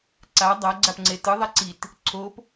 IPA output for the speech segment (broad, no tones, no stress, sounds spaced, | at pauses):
ǀ a dˤ a ɡ͡ǀ a p ŋ͡ǀ e t ɯ ðˤ ɛ ǀ i t | ǀʰ o p